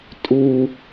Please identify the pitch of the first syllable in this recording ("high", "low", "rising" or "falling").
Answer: low